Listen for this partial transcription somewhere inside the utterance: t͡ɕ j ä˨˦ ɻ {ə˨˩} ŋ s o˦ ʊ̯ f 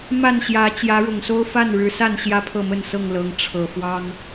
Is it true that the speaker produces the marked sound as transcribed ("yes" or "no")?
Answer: no